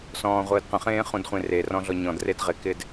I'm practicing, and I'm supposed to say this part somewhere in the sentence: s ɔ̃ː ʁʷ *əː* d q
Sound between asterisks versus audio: correct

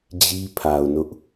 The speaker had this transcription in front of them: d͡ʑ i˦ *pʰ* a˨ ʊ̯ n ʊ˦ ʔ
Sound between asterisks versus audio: correct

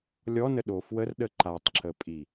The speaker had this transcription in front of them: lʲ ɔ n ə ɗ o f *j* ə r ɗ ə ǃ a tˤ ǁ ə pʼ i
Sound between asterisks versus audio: incorrect: w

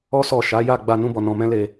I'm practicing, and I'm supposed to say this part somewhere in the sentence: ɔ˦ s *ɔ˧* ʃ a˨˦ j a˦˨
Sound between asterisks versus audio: incorrect: ɔ˦˨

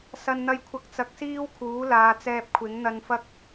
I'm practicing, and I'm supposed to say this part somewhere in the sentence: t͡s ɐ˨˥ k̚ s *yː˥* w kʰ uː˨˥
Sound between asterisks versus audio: incorrect: iː˥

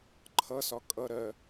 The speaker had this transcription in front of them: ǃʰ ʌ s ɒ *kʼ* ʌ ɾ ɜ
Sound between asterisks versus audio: correct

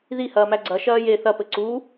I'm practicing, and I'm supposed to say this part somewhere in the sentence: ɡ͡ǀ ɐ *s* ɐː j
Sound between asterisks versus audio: incorrect: ʃ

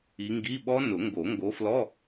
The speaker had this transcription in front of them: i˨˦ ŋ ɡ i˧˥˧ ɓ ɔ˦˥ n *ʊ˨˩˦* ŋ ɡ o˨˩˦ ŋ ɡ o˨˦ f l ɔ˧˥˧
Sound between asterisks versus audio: correct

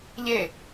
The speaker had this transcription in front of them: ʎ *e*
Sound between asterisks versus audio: correct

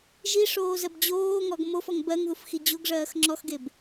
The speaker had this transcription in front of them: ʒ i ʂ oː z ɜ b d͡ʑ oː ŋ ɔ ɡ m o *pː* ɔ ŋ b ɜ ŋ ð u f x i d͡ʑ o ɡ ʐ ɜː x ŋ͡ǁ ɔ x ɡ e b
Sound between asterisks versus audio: incorrect: f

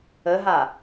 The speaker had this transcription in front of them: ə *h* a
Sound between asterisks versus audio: incorrect: ɦ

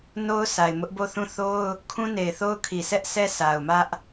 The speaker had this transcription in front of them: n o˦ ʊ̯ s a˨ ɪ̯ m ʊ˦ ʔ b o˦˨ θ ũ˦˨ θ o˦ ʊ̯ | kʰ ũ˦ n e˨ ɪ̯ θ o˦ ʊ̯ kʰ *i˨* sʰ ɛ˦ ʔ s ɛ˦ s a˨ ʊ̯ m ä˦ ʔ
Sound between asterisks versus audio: correct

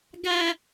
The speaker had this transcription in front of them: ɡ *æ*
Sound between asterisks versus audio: correct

